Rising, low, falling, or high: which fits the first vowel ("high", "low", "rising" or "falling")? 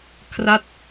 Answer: falling